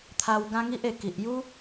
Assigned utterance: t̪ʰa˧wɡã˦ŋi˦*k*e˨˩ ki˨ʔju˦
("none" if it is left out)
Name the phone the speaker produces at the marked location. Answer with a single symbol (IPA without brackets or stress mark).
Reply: ʔ